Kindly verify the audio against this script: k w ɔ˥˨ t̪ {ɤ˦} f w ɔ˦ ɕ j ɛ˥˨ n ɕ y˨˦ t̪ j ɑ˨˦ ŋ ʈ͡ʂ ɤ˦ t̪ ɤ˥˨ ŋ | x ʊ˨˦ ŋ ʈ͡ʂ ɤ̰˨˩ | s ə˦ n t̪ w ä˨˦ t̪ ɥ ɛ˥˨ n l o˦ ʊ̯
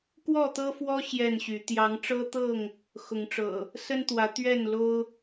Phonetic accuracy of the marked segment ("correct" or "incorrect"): correct